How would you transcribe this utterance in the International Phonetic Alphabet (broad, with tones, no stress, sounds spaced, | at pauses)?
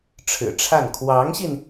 ʈ͡ʂʰ ɻ̩˨˩ ʈ͡ʂʰ a˥˩ n kʰ w ɑ˧˥ ŋ ɕ i˧ n